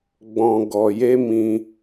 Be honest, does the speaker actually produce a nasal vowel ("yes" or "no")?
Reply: yes